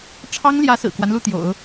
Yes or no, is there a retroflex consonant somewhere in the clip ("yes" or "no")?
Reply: yes